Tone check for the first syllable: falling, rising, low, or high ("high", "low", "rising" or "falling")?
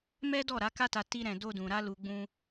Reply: high